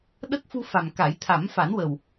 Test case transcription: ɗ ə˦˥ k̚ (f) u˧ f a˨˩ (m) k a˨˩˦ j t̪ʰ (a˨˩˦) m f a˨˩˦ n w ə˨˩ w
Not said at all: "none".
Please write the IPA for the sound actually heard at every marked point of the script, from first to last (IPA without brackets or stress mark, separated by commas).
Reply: f, m, a˨˩˦